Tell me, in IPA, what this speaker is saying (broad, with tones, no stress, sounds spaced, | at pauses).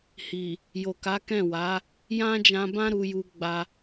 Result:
h i˨ | j o˨ k a˨˦ k ɛ̃˦˨ w a˨˦ | j ã˦ d͡ʒ ã˧ b ã˦ ɾ u˧ j u˧ ɡ͡b a˧